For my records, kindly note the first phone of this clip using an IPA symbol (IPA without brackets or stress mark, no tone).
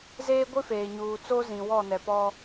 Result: z